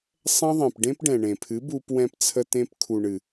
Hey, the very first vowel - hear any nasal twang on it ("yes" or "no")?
yes